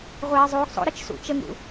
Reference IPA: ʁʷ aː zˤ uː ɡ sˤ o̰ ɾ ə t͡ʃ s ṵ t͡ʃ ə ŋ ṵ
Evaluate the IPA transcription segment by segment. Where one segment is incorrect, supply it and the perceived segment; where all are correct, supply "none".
none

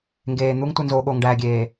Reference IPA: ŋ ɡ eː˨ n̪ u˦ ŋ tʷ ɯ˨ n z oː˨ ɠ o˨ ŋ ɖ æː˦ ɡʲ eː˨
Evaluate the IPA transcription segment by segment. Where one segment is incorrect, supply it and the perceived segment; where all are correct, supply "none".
æː˦ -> æː˨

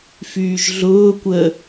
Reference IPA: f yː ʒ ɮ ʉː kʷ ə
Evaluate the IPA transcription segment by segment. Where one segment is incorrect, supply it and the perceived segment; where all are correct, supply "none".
ʉː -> ʊː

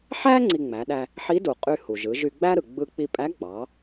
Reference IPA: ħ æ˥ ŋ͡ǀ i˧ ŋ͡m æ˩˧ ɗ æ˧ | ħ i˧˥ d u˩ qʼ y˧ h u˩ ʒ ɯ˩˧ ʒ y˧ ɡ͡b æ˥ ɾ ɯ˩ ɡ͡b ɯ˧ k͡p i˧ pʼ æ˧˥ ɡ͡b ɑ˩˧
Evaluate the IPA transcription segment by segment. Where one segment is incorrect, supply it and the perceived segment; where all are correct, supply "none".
none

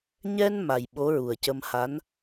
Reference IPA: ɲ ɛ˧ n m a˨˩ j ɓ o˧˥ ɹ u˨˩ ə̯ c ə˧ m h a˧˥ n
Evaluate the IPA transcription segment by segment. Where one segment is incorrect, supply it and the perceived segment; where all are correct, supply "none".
none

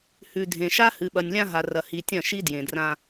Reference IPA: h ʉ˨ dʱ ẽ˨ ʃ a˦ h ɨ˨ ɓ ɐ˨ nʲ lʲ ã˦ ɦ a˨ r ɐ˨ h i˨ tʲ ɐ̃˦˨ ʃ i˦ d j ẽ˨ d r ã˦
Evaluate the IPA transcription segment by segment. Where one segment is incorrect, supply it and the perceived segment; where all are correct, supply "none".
none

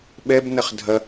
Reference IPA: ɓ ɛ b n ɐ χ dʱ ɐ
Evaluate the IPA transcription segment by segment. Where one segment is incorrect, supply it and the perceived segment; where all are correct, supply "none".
none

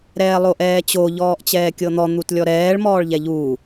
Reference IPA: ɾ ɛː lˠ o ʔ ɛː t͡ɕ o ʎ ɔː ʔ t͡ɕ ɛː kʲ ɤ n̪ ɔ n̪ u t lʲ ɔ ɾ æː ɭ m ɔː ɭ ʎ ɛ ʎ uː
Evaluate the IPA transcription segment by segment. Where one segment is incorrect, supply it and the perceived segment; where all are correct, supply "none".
æː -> ɛː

